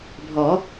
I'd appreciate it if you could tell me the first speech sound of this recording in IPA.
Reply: bʱ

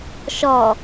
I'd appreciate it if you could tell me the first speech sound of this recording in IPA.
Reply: ʃ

